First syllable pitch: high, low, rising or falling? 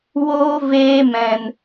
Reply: high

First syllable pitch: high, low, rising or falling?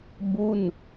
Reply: falling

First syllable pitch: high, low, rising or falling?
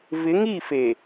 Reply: rising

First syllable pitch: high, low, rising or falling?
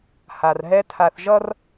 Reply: low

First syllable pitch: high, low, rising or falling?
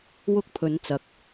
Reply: high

